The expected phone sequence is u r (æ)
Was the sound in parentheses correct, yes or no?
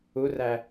yes